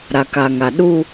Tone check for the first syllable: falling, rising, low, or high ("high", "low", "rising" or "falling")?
low